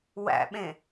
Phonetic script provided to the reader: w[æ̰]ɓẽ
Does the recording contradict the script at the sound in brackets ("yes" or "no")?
no